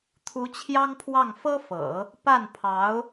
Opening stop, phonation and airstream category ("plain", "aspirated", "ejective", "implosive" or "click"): aspirated